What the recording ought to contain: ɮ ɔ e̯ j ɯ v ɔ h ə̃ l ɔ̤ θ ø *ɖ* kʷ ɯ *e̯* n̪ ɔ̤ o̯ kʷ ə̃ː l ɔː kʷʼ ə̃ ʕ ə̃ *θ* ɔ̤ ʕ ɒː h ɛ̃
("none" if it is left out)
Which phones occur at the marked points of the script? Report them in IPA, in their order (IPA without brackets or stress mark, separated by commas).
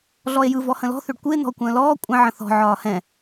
ɖ, e̯, θ